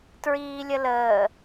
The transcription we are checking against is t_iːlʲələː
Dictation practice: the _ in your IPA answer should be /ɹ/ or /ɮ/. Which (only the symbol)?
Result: ɹ